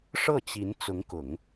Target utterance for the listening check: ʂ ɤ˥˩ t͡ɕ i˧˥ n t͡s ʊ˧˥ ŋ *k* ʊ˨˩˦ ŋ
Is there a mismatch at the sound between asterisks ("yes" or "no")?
no